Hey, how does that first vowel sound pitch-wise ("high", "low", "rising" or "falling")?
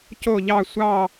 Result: falling